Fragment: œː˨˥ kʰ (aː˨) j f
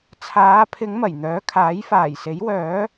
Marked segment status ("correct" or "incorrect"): incorrect